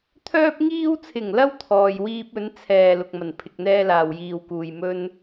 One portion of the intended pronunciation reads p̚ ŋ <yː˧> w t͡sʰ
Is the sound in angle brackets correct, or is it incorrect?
incorrect